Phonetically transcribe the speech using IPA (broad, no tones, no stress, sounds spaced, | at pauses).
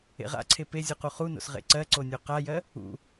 ḛ ʁ a̰ ǀʰ e p e zʲ u q u χ u n o̰ s ʁ ḛ ǀ ɜ ǀ o nʲ o q a j ɜ | ṵ